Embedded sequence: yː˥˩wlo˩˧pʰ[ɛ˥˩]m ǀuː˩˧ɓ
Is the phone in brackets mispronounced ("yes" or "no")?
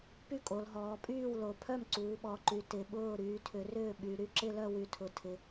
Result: yes